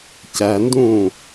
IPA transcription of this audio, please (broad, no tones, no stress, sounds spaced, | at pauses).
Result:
c æ n d ũː